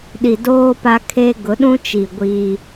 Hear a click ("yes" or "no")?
no